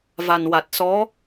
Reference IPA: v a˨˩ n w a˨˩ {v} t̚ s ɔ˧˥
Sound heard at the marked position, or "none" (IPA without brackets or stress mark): none